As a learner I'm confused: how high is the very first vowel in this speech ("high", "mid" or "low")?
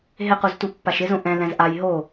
high